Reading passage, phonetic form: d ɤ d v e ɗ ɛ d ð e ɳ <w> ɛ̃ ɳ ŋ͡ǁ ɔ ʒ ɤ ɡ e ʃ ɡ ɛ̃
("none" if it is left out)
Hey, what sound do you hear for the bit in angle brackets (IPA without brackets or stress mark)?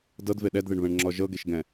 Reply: β